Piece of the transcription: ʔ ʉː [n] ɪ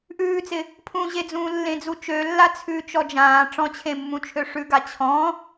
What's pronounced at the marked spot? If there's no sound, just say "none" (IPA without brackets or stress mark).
t͡s